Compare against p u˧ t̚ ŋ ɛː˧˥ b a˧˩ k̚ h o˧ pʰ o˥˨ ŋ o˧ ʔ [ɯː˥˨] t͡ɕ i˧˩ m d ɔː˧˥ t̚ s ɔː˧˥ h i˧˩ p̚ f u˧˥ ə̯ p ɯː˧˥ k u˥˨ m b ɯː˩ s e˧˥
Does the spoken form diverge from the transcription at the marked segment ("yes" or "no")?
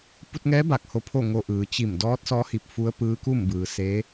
yes